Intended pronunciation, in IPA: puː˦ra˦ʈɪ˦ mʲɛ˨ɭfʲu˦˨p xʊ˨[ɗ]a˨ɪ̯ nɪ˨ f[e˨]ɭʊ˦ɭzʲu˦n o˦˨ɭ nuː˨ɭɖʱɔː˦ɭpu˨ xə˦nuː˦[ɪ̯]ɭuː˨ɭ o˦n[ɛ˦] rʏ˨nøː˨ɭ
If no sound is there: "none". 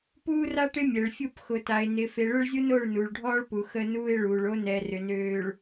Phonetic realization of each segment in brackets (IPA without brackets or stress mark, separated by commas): t, e˨, ɪ̯, ɛ˨